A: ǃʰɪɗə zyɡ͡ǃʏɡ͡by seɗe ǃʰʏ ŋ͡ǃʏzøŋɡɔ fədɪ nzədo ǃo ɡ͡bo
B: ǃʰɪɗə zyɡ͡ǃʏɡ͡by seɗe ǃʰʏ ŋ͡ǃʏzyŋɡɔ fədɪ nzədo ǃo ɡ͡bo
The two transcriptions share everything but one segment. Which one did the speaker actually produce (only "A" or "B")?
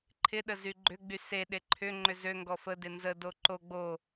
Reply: A